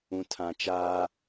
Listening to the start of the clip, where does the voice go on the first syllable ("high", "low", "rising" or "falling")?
low